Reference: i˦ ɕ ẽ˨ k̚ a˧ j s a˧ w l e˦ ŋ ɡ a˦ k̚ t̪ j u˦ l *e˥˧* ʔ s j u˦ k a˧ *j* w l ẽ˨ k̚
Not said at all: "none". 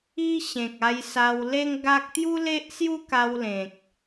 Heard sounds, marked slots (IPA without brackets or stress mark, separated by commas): e˦, none